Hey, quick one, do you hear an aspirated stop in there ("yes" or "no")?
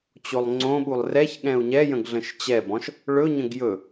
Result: no